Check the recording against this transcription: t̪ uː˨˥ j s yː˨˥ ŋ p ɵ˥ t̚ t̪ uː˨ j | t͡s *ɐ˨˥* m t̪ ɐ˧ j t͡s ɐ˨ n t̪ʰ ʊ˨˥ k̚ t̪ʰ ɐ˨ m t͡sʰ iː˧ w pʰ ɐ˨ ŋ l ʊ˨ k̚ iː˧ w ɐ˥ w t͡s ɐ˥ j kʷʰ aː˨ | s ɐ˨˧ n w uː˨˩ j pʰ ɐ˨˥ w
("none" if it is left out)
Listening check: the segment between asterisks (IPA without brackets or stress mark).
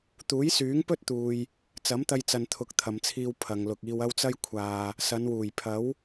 ɐ˨˥